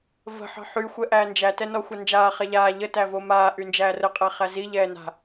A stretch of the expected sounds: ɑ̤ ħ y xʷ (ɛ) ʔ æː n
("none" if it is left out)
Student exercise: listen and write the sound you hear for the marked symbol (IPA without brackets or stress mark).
ɛ